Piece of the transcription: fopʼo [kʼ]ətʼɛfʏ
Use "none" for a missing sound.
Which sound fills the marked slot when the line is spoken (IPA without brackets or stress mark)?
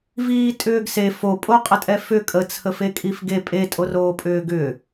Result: qʼ